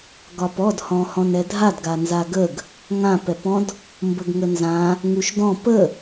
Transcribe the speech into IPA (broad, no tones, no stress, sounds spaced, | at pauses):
ɡ ɒ p ɔ d h ɔ̃ h ɔ̃ n ɛ dʱ a d ɡ a n z a ɡ ə ɡ | ŋ ã p ɛ p ɔ̃ d | m b ə ɡ ŋ ə n z ã | ŋ u ʃ d ɔ̃ p ə